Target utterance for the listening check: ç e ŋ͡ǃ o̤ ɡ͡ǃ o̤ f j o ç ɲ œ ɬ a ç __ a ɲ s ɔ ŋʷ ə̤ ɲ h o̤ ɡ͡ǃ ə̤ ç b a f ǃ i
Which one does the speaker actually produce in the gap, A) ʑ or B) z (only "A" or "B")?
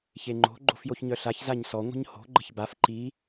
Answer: B